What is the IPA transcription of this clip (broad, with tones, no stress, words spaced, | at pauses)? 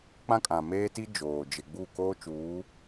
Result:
k͡pã˦kʼã˨ meː˦ti˦ d͡ʒoː˨ d͡ʒɪ˨ɡ͡bu˦˨ koː˦t͡ʃuː˨˦